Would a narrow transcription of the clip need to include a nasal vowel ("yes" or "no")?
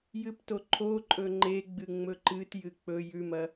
no